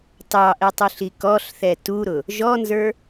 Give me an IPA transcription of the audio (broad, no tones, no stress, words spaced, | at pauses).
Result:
tɑʔɛtˤuɬi kɔɬθɛ tuɾʊ | ʒɔnzə˞